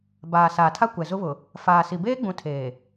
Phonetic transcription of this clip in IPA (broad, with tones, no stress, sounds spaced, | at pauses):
b aː˨ s aː˨ tʰ a˦ kʷ ɛ˨ z ʊ˦ β ʊ˨ | f aː˨ s i˨ b eː˦ ɡ͡b ũ˨˦ tʰ eː˨